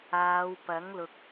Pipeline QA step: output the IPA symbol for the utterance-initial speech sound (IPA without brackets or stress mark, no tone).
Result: aː